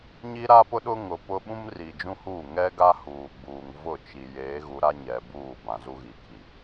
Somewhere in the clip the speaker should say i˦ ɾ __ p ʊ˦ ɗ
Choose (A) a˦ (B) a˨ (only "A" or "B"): A